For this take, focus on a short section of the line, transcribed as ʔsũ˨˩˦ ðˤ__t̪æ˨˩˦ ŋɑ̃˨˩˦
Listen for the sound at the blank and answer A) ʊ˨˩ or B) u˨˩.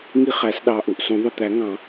A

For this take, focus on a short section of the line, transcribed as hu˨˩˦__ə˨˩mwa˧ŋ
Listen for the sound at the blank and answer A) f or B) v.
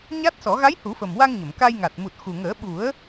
A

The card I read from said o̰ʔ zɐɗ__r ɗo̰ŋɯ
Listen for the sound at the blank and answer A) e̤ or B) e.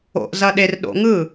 B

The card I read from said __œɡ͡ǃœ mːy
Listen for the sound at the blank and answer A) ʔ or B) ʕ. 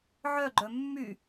B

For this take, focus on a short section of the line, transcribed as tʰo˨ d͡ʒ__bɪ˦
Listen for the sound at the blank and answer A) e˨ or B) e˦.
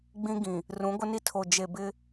A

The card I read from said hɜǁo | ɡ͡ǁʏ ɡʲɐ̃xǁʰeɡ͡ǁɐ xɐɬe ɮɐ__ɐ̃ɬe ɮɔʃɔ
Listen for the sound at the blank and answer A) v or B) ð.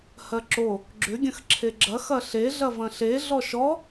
A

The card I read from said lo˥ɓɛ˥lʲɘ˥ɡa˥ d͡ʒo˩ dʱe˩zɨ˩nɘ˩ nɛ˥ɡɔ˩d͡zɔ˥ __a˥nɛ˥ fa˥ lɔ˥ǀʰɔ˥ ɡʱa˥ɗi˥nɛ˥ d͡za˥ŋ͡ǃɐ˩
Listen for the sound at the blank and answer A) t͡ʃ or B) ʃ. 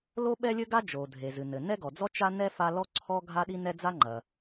A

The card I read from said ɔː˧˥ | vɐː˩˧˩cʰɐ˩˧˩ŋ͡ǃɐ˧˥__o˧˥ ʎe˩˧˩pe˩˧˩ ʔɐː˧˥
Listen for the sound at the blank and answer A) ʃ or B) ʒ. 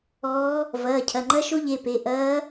A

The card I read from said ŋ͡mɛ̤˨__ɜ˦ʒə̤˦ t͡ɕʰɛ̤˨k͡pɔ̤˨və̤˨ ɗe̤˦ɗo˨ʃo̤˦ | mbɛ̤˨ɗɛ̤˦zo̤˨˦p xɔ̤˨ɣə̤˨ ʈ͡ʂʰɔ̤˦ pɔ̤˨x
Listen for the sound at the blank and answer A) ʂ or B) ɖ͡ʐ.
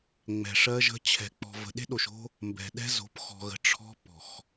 A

